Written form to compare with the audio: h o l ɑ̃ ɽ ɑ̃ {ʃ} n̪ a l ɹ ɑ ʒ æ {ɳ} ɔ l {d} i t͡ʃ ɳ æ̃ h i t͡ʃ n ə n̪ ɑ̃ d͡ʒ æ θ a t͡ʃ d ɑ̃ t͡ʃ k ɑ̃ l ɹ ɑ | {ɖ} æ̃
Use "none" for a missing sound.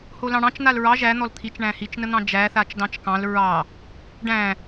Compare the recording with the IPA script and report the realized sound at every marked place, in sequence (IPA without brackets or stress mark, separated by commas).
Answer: t͡ʃ, n̪, t̪ʰ, ɖ